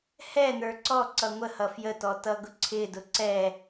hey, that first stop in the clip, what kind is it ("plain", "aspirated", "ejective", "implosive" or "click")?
click